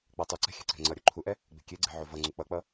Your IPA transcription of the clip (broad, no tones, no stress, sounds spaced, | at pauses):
k͡p a tˤ u ǀ ɛ̤ xʲ ɛ̤ ǀ ɛ̤ ŋ͡ǀ ʌ ɾʲ u ǃʰ u ʔ ɛ | ɡ͡b e̤ kʲ e ɡ͡ǀ e̤ ʕ o v ʌ ŋ͡ǀ u k͡p ʌ k͡p ʌ